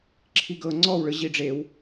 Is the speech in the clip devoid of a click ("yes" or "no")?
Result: no